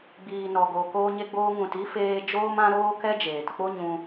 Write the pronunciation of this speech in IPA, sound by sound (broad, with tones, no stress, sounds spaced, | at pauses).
ɡ͡b iː˨ n ɔ˨ ɡ o˨ k oː˧ ɲ e˧ ɡ͡b oː˧ ŋ ũ˨ t i˦ f eː˧ d͡ʒ oː˧ m ã˧ ɾ oː˧ k ɛ˧ d͡ʒ eː˨ t k͡p o˦ ɲ ũ˧